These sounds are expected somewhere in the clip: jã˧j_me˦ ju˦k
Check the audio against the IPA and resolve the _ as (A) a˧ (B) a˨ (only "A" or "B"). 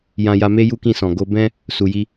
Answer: A